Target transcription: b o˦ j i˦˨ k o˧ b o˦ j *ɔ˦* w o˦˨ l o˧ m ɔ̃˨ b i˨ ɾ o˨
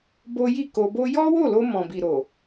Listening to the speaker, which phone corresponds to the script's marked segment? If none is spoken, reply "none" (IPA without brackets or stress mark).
ɔ˦